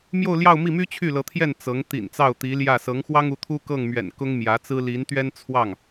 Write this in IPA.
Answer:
m j o˥˧ ʊ̯ l j ɑ˥˧ ʊ̯ m i˥˩ m y˥ t͡ɕʰ y˥˩ l ɤ˧˥ t̪ʰ j ɛ˥˩ n t͡s ɤ˧˥ ŋ t̪ ḭ˨˩ n t͡s ɑ˥˩ ʊ̯ t̪ i˧˥ l j ä˥˩ s ɤ˧˥ ŋ x w ɑ˥ ŋ u˧˥ t̪ʰ u˥ k ɤ˥˩ ŋ m ɥ ɛ̰˨˩ n k ʊ˥ ŋ m j ä˧˥ t͡s ɹ̩˥ l i˧˥ n t̪ ɥ ɛ˥ n t͡sʰ w ɑ˥˩ ŋ

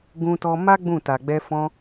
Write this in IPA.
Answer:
ɡ ũ˦ t ɔ˦ m a˦ ɡ͡b ũ˦˨ t a˨ ɡ͡b ɛ˧ f ɔ̃˧

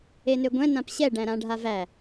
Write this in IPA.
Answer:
e n ø ɡʷ ɛ̃ n ã p ɕ ɛ ɖ æ̃ ɾ ã ɖʱ a v æ

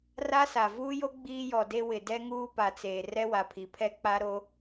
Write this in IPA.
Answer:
r a˦ s a˨ v uː˦ j o˦ ɡ͡b iː˦ j ɔ˨ d e˦ w ɪ˨ d ɛ˦ ŋ uː˦ p a˨ t͡s eː˨ r ɛ˦ w a˨ pʰ i˨ pʰ ɛ˦ k͡p a˦ ɾ o˦

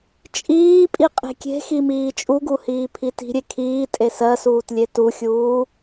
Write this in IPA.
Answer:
t͡ʃʼ iː pʼ i qʼ e̤ kʲ e̤ x i m iː t͡ʃʼ u ɡ u h iː pʰ i t i̤ ɾʲ e kʰ iː tʼ e s ɜ s uː t lʲ e t u xʲ uː

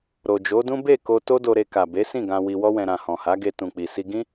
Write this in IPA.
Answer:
ɾ o˨ d͡ʒ o˨˦ d ũ˦ b e˦˨ k o˧ t o˦ d o˧ ɾ e˧ k a˨ b e˨˦ s ĩ˦˨ ɡ ã˧ w i˧ w ɔ˦ w ɛ̃˧ ɾ ã˨ h ɔ̃˨ h a˨˦ ɡ e˧ t ũ˨ k͡p i˨ s i˧ ɡ ĩ˦

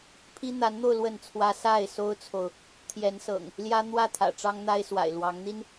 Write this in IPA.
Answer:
pʰ i˦ n̪ a˨˦ n n̪ o˧ ʊ̯ l w ə˥˨ n t͡sʰ w ä˦ s a˥˨ ɪ̯ s o˦ ʊ̯ t͡sʰ o˨ ʊ̯ | t̪ʰ j ɛ˨˦ n s ɤ̰˨˩ ŋ | l j ä˦ n̪ w ä˥˨ t̪ʰ ä̰˨˩ ʈ͡ʂ ɑ˦ ŋ n̪ a˦ ɪ̯ s w a̰˨˩ ɪ̯ l w ɑ˨˦ ŋ n̪ i˦ n

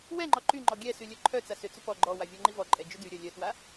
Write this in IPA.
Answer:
w ɛ ŋ͡ǃ ɔ ǃ y ŋ͡ǃ ɔ ɡʲ ɛ s y lʲ œ ǃʰ œ t͡s a s ʏ t͡s ʏ p ɔ ɡ͡ǃ ɔ w a vʲ ɔ ŋ͡ǃ i v ɔ ǃʼ ɛ d͡ʒ ʏ d y ɾʲ œ lʲ œ t w a

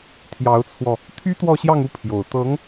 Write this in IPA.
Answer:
t̪ʰ j ɑ˧˥ ʊ̯ t͡sʰ w ɔ˧ | t̪ʰ y˥ t̪ w ɔ˥˧ ɕ j ɑ˥˧ ŋ u˥˩ pʰ j o˨˩ ʊ̯ t̪ ɤ˧˥ ŋ

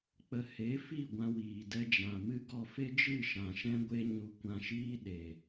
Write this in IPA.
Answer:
k͡p ə˧ h e˨˦ f i˦˨ ɡʷ ã˧ w iː˨ d ɛ˧ d͡ʒ ã˨ m ɨ˦ ɡ ɔ˧ f e˦ d͡ʒ ɨ˦˨ ʃ ã˨ ʃ ɛ̃˦ ɡʷ e˦ ɲ u˧ kʷ ã˧ ʃ iː˦ ɗ e˨

